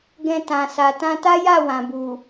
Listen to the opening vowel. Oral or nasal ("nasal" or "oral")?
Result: nasal